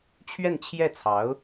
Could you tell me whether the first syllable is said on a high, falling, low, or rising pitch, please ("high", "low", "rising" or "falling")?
falling